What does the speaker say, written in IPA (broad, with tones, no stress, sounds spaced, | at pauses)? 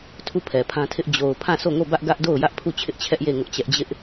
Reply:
tʰ u˦˨ pʰ ɛ˨ pʰ ã˦ tʰ ɪ˦ ʔ d͡ʑ o˨ ʊ̯ pʰ ã˦˨ s o˦˨ ŋ o˦˨ b ä˦ ʔ ɡ ä˦ ʔ d o˦˨ ʊ̯ j ä˦ ʔ pʰ u˦˨ t͡ɕʰ ɪ˦ ʔ t͡ɕʰ ɛ˦ ʔ j e˦˨ ŋ ʊ˦ ʔ t͡ɕ ɛ˦ ʔ d͡ʑ ɪ˦ ʔ